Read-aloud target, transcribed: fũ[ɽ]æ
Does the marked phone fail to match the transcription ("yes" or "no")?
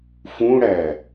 no